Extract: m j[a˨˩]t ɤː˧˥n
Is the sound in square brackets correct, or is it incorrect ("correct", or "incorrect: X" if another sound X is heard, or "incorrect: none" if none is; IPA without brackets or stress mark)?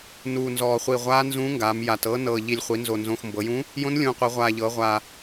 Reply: correct